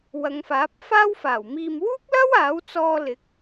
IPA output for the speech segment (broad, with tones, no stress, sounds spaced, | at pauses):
w ɐ˨˧ ŋ f aː˨˥ p̚ f aː˥ w f aː˨˩ w m iː˨ m w uː˥ k̚ l ɐ˥ w aː˨˥ w t͡s ɔː˧ l ɪ˨˥ k̚